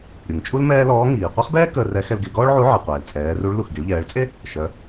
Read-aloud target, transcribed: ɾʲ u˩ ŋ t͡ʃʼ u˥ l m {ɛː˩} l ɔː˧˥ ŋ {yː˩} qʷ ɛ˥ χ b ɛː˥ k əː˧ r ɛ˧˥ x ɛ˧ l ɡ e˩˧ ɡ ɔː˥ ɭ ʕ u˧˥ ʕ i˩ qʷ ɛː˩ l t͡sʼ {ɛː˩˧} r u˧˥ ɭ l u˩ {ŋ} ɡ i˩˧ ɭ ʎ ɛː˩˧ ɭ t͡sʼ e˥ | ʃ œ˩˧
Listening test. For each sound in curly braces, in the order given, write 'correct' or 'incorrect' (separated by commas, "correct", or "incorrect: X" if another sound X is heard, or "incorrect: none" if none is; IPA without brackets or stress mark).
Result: incorrect: ɛː˥, incorrect: iː˩, correct, incorrect: x